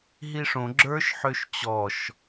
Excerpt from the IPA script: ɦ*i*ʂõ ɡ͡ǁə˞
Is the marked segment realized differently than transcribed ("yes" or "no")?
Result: no